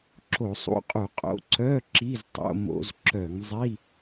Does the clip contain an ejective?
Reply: yes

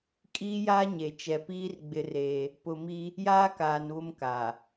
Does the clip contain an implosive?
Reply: no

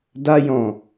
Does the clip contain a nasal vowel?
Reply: yes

